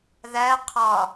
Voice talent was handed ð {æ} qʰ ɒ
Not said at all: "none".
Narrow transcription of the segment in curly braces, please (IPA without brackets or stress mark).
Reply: æ